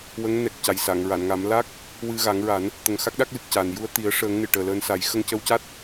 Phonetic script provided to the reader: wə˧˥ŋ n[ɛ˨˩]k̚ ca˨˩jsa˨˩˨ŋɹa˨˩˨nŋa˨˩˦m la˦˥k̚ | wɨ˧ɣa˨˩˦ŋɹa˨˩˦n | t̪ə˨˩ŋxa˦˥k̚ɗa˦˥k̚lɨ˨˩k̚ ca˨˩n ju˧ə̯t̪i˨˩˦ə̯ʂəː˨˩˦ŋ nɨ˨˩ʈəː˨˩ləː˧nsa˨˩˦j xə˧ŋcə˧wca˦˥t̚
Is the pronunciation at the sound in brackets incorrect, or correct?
correct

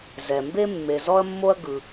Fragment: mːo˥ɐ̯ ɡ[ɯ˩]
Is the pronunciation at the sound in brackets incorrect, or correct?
correct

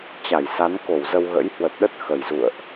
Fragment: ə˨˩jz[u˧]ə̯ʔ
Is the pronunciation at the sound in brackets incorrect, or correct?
incorrect: ṵ˧˨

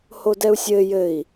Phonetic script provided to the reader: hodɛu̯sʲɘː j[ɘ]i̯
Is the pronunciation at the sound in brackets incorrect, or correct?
correct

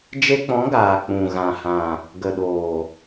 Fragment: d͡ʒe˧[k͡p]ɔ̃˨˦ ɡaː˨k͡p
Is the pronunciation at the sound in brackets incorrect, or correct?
correct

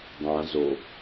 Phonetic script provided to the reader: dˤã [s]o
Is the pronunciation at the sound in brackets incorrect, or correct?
incorrect: z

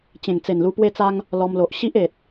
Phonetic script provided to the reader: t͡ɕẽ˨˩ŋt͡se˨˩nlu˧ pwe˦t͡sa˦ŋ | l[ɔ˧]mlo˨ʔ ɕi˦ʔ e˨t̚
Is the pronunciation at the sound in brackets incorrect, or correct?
correct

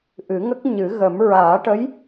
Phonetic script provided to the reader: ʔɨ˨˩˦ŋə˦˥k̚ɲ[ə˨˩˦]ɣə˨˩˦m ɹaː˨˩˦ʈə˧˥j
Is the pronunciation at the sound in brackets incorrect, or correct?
incorrect: ɨ˨˩˦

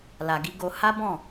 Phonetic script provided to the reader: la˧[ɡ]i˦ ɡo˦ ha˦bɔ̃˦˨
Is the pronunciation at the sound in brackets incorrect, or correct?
correct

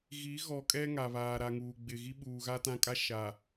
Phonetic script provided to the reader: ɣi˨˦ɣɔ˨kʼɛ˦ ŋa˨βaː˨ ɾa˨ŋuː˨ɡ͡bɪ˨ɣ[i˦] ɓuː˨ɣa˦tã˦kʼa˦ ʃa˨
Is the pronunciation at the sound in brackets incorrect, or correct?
correct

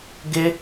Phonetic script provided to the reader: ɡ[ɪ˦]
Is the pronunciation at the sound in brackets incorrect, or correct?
correct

